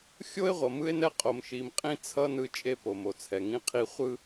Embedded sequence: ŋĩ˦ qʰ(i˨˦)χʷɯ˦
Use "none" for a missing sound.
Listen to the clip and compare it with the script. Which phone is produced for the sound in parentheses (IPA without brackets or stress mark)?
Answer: i˦